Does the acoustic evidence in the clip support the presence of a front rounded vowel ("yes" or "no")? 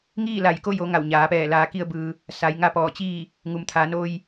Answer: no